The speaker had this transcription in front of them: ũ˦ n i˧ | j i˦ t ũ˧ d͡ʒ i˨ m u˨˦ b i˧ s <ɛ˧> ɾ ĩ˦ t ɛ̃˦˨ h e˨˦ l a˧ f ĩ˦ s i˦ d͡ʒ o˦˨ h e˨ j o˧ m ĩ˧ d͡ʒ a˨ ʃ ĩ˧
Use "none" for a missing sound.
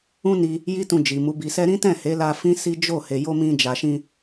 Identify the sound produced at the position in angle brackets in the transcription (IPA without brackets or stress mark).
ɛ˦